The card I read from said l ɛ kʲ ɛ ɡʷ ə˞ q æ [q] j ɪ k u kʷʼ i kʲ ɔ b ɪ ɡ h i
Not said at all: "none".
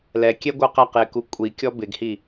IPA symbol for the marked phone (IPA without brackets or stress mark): q